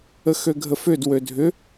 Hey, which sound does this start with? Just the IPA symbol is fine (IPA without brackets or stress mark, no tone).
ə